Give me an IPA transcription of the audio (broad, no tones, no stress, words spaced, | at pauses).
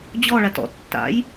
d͡ʑɔɭat ɔ̰tːa̰j